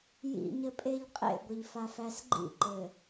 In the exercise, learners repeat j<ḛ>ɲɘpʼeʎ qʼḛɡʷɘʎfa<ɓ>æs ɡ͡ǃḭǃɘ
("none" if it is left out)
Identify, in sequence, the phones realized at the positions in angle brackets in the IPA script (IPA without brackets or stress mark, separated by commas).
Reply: ḭ, f